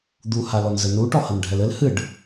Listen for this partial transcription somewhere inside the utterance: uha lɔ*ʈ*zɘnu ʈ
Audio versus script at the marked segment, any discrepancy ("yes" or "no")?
yes